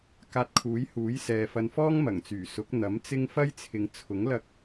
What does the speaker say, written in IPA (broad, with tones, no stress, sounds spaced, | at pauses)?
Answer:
k aː˧ t̚ kʰ uː˨˥ j h uː˨˥ j s ɛː˨ f ɐ˧ n f ɔː˥ ŋ m ɐ˨˩ ŋ t͡s yː˨˩ s ʊ˨˥ k̚ n̪ ɐ˨˥ m t͡s ɪ˥ ŋ f ɐ˥ j t͡sʰ ɪ˨ ŋ t͡sʰ ʊ˨˥ ŋ l ɐ˥ k̚